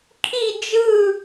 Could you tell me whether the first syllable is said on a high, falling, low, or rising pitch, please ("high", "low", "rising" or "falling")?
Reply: falling